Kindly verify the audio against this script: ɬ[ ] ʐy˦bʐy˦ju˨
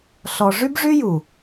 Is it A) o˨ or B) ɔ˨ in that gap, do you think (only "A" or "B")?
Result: B